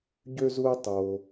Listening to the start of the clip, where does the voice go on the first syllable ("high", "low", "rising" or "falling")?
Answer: high